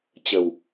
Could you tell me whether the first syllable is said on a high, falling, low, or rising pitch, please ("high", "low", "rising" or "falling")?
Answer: low